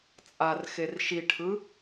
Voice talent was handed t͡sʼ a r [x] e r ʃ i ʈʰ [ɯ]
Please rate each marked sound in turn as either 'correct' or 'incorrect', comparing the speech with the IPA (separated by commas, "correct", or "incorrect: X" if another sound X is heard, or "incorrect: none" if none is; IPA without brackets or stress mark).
correct, correct